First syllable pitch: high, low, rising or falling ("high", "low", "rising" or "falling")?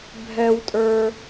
low